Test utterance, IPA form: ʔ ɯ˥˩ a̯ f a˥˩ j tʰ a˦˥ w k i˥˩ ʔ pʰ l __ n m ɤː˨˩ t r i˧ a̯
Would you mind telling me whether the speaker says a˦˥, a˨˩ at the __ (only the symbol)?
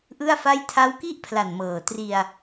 a˨˩